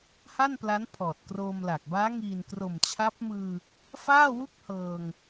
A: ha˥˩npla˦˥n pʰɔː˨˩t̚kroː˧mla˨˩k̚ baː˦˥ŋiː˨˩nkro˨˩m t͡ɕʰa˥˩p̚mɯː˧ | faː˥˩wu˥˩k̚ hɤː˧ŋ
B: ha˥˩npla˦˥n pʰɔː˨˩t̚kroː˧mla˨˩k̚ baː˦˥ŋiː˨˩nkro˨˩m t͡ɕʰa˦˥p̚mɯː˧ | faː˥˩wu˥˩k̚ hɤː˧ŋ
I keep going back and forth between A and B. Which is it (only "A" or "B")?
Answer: B